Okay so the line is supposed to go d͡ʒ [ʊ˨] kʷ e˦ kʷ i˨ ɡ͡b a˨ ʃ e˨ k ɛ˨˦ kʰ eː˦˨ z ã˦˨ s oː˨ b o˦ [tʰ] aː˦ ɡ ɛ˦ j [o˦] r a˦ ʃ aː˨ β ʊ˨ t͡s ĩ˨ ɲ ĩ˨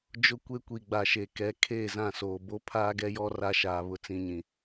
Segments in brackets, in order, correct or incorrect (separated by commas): incorrect, incorrect, incorrect